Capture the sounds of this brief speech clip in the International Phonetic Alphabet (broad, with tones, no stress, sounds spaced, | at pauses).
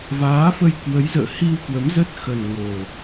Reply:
v aː˨˦ f ə˧ j k w ə˨˦ j z ə̰ː˧˨ h i˧ w k w ə˨˦ m z ə˦˥ t̚ x ə˨˩ n ŋ o˨˩